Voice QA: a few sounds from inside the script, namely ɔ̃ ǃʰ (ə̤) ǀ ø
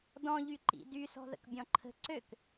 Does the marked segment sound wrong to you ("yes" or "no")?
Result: no